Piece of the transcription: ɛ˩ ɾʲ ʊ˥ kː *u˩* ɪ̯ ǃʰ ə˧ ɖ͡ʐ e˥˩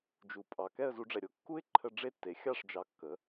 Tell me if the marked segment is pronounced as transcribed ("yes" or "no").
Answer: no